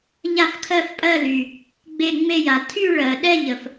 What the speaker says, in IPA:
ʎ a˥˧ f kʰ ɜ˥˧ f pʼ ɜ˥˧ l y˩ | ɡ͡b e˥˧ ŋ͡m e˥˧ j a˩ tʰ y˥˧ ɭ ɜ˩ ɗ ɛ˥˧ ʎ ə˩ f

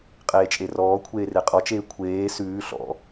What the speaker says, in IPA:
qʼ eː t͡ʃʼ e r ɔː kʷʰ eː r e qʼ ɔ t͡ʃ eː kʷʰ eː s ʉː ɬ ɔ̰

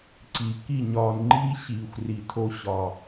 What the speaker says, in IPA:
ǀ i˨ k i˦˨ ɲ ɒː˨ n ŋ͡ǃ iː˦ ɕ iː˨ xʷ r i˨ tʰ o˧ ɕ ɒ˨

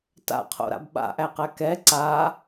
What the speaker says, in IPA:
t a̰ qʰ o̰ ɾ a̰ b ɓ a̰ ʔ æ q æ k ɛ ǀ a

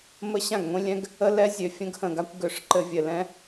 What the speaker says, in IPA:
m ə˦ ɕ ã˦˨ ɡ ŋʷ ĩ˦ lʲ ɛ̃˦ ɡ | ə˦ l ɛ˦ zʲ ø˨ fʲ ə̃˦ ɡ h ə̃˨ ɡ a˦ kʷ ɡ ø˨ ʂ ǃ ɘ˦ vʲ ɘ˨ l ɛ̃˦

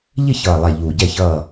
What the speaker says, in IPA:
ʎ ɪ˦˨ ç ʌː˨˩ lˠ ɛ˨˩ ʎ uː˨˩ ɟ ɛ˦˨ ç ʌː˦˨

